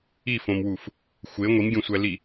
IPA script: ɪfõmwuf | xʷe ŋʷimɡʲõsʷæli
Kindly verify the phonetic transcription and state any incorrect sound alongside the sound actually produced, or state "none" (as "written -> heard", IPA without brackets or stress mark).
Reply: ɪ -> i